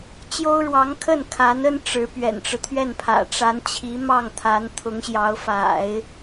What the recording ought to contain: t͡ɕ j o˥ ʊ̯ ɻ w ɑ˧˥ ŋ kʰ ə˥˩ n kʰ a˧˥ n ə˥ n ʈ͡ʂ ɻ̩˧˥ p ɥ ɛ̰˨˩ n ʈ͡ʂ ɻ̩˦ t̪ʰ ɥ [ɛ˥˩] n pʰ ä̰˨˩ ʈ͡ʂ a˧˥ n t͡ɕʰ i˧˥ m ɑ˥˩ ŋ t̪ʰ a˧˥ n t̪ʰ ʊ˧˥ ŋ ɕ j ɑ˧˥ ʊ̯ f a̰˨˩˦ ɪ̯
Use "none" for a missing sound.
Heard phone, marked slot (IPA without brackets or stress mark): ɛ˥˩